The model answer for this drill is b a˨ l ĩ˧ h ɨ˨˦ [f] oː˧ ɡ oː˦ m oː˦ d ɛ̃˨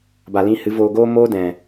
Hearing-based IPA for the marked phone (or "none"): v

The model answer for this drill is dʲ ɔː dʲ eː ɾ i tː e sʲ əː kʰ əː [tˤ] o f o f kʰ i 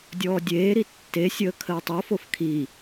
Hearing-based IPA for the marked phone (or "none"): tˤ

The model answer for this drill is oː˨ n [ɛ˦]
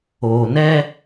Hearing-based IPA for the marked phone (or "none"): ɛ˦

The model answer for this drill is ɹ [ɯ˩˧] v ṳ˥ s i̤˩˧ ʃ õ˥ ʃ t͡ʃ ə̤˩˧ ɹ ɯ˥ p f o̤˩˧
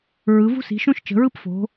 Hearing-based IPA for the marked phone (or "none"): ɯ˩˧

